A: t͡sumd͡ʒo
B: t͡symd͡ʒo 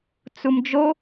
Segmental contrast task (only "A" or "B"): A